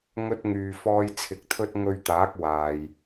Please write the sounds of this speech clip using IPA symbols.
ŋ ɵ˥ t̚ ŋ yː˨ f ɔː˧ j t͡sʰ ɪ˨˥ k̚ t̪ʰ ɵ˥ t̚ ŋ ɵ˧ ɥ t̪ aː˨˥ k̚ w aː˨ j

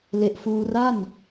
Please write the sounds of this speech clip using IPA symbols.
l e˨˩ ʔ f uː˧ r a˥˩ n

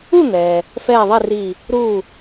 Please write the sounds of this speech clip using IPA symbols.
u˥˩ n̪ ɛː˩ | f ɛː˥˩ ðˤ i˥˩ r iː˧˩ | ɾ uː˧˩

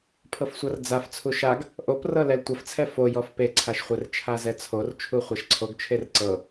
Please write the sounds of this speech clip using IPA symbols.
pʰ ɤ f sʷ ɐ r d͡z a f t͡sʰ u ʃ a ɡ | ʔ o p r ɤ l ɛ l tʷ ɐ f t͡sʰ ɛ f o j ɔ f p e ǀʰ a ʃ χʷ e r t͡ʃʰ a z ɛ t͡sʰ o r t͡ʃʰ u χʷ ɛ ʃ ǀʰ o ɡ t͡ʃʰ e r ǀ ɤ

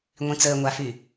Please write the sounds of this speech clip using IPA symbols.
ŋʷ ĩ t͡s əː ŋʷ a f y

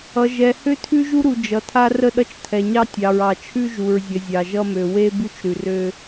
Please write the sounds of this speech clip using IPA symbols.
ʌ˨ ʒ ɛ˨ h ø˦ tʰ ʉ˦ ʒ u˦ ɾ u˨ d͡ʒ ʌ˨ tʰ a˦ r ə˦˨ ɗ ʌ˦ t͡ʃ tʰ ɛ˨ ɲ ɑ˦ tʲ ɑ˨ ɹ ɑ˨ t͡ʃʰ ʉ˦ ʒ u˨ ɹ zʲ ə˨ zʲ ɑ˨ ʒ ʌ˦ m ø˨ w e˦ b ʉ˦ t͡ʃ ɾ ʉ˨ r ø˦

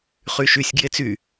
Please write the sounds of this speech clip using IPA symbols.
χ y ʃ y sʲ ɡ j e t͡s y

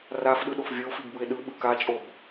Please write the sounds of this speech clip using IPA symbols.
r a f ɗ ɯ ɗ o f vʲ ʌ o̯ f i ɡ b ɯ e̯ ɗ ɯ ɓ ɯ k a t͡ʃʼ o b

